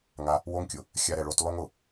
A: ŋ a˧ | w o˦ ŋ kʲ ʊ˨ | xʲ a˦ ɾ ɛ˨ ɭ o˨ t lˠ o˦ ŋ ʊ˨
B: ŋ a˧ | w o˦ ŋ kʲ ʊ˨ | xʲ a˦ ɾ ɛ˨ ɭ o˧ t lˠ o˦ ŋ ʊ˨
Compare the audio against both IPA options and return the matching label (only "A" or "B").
B